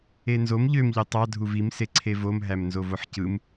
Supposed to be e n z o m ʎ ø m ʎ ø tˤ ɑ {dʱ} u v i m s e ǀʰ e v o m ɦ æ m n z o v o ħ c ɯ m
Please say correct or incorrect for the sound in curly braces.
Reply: correct